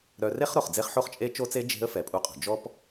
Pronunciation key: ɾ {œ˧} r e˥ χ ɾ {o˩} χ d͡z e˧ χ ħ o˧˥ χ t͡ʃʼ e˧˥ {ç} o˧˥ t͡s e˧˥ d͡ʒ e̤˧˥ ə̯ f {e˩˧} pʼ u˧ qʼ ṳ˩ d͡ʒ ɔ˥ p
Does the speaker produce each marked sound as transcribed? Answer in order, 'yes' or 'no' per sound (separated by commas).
yes, yes, no, no